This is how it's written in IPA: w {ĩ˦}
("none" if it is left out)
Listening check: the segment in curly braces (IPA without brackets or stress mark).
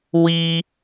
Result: i˦